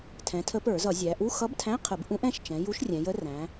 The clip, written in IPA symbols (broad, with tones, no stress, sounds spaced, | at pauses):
tʰ ɛ̃˩˧ tʰ ə˧˥ p ə˞˧˩˧ z ʌ˧˩˧ zʲ æ˩˧ ʔ u˧˥˧ x ʌ˧˥ b tʰ æ̃˧˥˧ qʰ ə˧˩˧ b ʔ ũ˧˥ ʔ ɛ̃˩˧˩ ʃ t͡ʃ ɛ̃˩˧ j u˧˥ ʃ rʲ ɛ̃˩˧ j ə˧˥ r æ̃˩˧